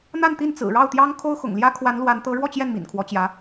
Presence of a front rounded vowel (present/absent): absent